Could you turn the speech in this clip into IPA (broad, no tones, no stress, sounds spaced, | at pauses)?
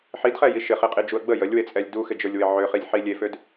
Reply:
ħ i d χ ɛ j i ʃ ɪ χ i qʼ i d͡ʒ u ə̯ ɡ͡b ə j ə lʲ w e t͡sʼ ɛ lʲ d u x ɪ d͡ʒ ə˞ lʲ w ɪ ʕ ø χ i lʲ ħ i lʲ e f ø d